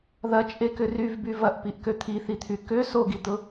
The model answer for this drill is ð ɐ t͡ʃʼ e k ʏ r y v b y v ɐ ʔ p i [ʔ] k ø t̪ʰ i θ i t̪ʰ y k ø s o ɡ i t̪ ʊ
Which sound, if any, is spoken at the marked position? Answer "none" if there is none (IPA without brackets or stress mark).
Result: ʔ